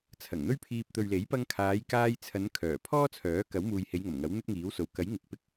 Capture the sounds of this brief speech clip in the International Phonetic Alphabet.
t͡sʰ ɐ˨˩ ŋ n̪ ɵ˥ ɥ pʰ iː˧ p̚ t̪ ɵ˨ ɥ l e˨˥ j p ɐ˧ ŋ kʰ aː˨˧ j k aː˧ j t͡sʰ ɐ˨˧ n kʰ œː˨˩ pʰ ɔː˥ t͡sʰ œː˨˥ k ɐ˨˥ w m uː˨ j h e˨˧ j ŋ ɐ˨˩ m ŋ ɐ˨˥ w n̪ ɵ˥ t̚ ŋ iː˨˥ w s o˨ w k ɐ˨˥ j ŋ ɪ˨ k̚ p ɪ˥ k̚

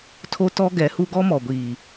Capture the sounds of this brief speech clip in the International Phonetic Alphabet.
tʰ o˦ t ɔ˦ ɡ ɛ˨˦ h u˦ ɡ ɔ˦ m ɔ˨ ɡʷ iː˨

